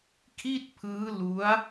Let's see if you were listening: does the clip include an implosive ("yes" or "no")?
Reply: no